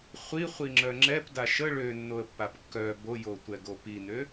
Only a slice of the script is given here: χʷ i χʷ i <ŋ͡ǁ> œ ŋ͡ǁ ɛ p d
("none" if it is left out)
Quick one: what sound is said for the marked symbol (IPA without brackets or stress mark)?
ŋ͡ǁ